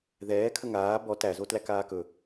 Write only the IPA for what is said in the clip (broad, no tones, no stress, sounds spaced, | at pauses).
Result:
ð ɛː kʰ ə ŋ aː b ɔ t æ z o t l æ k aː k ɵ